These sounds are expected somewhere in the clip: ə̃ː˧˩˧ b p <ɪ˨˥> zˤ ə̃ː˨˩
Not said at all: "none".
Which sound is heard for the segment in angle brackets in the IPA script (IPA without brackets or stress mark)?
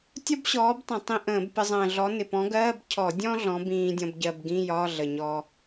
ɪ˧